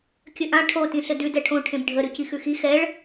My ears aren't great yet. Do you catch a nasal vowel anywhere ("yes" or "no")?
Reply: yes